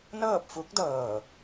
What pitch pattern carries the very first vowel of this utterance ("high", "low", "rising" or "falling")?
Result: falling